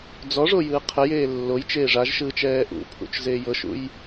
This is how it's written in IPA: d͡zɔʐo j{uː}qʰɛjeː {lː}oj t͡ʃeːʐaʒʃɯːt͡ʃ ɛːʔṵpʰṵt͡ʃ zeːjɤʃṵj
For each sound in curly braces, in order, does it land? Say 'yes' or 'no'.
no, yes

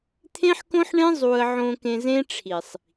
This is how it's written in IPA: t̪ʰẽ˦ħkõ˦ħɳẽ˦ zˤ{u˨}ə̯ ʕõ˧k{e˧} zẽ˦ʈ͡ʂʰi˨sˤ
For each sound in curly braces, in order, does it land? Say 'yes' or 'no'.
no, no

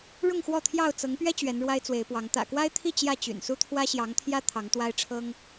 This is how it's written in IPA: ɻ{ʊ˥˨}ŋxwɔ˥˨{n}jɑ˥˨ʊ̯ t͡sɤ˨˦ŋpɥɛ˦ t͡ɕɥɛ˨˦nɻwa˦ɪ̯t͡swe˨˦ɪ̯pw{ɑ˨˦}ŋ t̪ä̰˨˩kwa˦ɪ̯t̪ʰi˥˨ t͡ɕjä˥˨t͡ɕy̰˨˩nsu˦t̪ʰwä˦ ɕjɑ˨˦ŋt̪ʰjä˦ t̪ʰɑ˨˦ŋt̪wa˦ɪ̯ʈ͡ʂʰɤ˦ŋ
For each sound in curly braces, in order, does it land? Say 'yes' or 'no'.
yes, no, yes

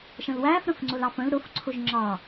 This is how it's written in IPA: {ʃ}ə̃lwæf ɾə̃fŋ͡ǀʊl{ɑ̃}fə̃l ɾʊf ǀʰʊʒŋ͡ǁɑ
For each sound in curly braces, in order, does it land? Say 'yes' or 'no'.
yes, no

